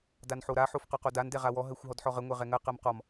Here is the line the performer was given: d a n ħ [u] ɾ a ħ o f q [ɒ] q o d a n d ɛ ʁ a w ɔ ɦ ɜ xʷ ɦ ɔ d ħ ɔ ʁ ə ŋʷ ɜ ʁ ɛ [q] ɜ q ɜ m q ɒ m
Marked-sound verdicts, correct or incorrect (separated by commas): incorrect, correct, incorrect